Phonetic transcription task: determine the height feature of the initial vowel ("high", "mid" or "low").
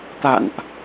low